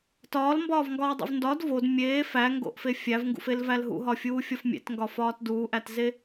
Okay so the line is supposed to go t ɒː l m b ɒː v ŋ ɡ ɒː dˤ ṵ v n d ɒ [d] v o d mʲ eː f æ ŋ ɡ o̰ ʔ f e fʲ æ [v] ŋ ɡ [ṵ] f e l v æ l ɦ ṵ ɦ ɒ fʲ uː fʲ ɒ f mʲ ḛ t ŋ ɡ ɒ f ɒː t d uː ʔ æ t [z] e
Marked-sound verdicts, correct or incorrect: correct, correct, correct, correct

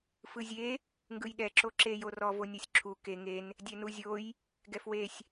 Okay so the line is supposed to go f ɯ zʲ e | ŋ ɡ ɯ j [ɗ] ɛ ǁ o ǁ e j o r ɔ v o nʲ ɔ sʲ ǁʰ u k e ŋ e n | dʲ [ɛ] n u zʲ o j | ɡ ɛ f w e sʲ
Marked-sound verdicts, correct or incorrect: correct, correct

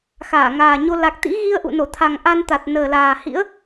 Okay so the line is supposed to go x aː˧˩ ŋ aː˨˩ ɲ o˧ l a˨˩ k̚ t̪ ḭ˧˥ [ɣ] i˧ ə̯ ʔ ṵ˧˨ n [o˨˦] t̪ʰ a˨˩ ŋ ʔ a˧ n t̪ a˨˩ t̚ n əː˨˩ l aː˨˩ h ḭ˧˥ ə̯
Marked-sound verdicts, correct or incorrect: correct, incorrect: o˧˩

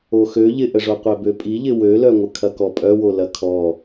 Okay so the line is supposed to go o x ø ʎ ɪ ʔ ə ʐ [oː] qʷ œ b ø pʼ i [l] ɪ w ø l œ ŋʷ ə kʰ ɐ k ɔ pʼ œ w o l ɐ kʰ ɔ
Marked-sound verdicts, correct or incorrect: incorrect: o, incorrect: ʎ

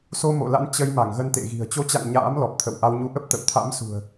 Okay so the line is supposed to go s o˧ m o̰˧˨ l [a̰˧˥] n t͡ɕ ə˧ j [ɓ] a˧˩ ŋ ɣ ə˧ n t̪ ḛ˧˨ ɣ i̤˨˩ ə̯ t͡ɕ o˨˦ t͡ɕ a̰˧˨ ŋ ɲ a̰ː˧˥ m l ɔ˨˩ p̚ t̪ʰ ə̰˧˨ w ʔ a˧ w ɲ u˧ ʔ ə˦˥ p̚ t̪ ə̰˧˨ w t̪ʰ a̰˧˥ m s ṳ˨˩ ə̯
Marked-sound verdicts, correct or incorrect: correct, incorrect: m

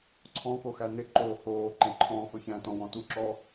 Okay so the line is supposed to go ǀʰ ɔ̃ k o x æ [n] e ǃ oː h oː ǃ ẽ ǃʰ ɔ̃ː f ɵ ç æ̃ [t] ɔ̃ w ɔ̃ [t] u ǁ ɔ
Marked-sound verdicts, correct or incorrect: correct, correct, correct

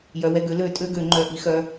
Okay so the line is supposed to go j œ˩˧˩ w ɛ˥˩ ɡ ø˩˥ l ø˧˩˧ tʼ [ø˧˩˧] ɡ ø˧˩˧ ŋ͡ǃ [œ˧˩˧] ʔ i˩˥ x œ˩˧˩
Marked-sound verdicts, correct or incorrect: incorrect: ø˧˥˧, incorrect: œ˩˧˩

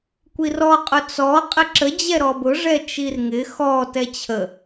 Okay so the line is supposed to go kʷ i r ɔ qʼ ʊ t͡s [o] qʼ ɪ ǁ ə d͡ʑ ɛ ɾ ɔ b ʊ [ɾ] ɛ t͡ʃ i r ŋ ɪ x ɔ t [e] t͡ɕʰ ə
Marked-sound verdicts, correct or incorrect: incorrect: ɔ, incorrect: ʐ, incorrect: ɛ

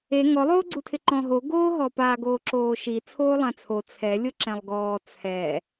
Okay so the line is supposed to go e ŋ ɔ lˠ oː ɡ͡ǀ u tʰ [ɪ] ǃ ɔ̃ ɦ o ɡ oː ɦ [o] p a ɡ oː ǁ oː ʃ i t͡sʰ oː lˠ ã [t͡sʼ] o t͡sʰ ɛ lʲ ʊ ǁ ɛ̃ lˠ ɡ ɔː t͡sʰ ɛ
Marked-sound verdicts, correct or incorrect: correct, incorrect: ɔ, incorrect: t͡sʰ

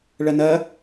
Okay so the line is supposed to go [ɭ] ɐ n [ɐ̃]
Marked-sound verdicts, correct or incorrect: correct, incorrect: ɐ

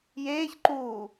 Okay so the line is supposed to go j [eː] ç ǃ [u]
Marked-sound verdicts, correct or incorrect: correct, correct

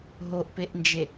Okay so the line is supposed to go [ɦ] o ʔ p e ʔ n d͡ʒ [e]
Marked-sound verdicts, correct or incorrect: correct, correct

